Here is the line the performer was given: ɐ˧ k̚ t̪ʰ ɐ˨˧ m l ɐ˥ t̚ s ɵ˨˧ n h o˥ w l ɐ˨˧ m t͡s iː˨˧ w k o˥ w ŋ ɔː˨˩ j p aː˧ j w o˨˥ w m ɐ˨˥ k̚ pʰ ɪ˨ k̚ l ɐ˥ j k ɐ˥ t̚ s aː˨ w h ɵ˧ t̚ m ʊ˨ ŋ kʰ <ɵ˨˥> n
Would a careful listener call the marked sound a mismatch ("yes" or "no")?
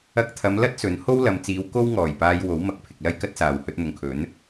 no